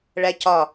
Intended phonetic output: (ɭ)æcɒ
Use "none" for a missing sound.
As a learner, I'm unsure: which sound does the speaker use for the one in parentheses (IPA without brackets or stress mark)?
ɭ